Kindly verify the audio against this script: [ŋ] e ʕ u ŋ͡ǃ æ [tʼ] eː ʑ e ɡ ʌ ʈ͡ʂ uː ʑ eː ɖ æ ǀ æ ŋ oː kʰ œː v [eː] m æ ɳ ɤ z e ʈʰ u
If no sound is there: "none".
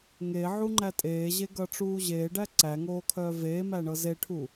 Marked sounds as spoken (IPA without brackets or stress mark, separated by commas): ŋ, tʼ, eː